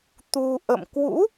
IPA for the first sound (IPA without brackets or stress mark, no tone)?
t̪